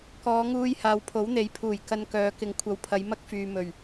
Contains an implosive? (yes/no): no